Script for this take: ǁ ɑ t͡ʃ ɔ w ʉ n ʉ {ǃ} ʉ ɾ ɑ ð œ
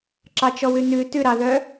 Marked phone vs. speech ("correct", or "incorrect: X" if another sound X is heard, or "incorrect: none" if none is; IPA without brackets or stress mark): incorrect: t